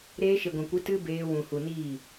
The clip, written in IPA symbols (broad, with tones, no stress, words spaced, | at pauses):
ɾeː˧ʃe˨ɡʷɛ̃˨kʷɨ˨˦ tɨ˧ beː˧wũ˨ hu˨ niː˦˨